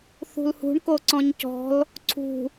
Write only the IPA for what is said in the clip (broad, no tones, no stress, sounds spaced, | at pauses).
θ ṳ l h ṳ ɳ k o ǀ ɔ̃ ɲ c ɔ̤ l | ǀʰ ṳ